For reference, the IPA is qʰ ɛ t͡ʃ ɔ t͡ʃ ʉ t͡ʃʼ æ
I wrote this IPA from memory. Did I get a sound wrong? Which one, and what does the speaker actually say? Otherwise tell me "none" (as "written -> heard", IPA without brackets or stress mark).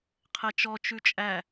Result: none